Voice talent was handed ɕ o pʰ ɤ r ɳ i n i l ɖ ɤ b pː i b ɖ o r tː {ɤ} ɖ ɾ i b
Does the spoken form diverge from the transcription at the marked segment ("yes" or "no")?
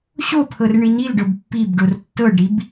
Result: no